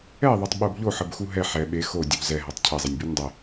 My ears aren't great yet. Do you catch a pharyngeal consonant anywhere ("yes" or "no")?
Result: yes